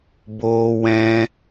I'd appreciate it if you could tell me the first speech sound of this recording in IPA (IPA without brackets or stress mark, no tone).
b